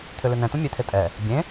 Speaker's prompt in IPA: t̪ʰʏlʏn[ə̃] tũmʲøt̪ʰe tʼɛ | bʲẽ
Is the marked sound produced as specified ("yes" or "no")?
no